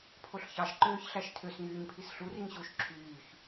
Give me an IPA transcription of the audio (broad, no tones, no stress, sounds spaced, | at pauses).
pʰ o ɬ ç ɑ ʃ ǃ øː ç ɬ æ ʃ tʰ ø s ŋ yː ɲ pʰ i s ɬ u r i ŋ ɕ u ʃ ǁʰ yː ç